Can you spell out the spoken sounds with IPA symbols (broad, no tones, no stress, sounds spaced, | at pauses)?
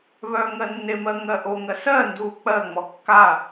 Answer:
β œː ŋ ɜ nː e m ɜ ŋ ɜ ʔ o ŋ ɜ s ɜ n d uː k͡p ɜ ŋ͡m ɔ kː a